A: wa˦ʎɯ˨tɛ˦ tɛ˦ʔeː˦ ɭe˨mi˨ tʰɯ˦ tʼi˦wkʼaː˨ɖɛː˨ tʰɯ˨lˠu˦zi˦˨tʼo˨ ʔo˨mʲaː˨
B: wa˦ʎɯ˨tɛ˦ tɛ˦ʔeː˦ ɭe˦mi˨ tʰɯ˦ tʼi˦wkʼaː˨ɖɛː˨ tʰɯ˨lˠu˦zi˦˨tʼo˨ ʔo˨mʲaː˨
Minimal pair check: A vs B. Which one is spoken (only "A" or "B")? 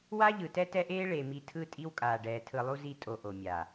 A